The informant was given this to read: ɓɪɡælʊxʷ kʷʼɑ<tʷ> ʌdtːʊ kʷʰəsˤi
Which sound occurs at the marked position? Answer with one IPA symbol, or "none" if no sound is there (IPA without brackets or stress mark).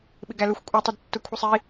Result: tˤ